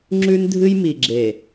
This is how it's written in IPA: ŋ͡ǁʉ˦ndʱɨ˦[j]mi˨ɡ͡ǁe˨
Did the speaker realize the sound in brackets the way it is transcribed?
yes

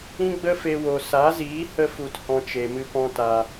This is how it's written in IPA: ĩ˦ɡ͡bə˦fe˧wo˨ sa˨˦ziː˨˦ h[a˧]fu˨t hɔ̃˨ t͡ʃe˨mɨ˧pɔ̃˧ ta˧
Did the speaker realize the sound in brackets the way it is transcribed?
no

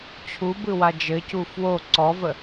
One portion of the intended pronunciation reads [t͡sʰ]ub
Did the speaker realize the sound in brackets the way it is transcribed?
no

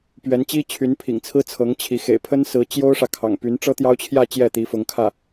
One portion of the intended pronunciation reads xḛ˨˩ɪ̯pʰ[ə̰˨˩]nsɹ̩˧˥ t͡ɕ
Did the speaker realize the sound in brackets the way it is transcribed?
no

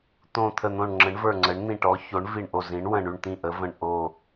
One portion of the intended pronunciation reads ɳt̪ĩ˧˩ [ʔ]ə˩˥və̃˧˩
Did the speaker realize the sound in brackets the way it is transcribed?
yes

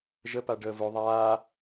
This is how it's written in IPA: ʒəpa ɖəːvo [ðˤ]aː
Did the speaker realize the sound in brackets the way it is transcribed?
yes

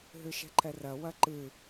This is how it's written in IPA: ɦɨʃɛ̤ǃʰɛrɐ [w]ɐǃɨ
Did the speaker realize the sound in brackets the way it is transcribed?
yes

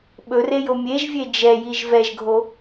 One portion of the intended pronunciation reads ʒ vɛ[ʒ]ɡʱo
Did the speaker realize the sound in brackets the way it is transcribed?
yes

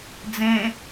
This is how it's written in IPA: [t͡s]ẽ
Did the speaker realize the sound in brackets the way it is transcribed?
no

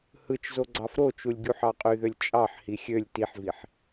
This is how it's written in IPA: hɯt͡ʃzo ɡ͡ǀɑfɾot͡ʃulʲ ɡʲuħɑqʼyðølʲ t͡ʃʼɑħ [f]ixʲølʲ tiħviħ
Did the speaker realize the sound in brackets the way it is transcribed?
no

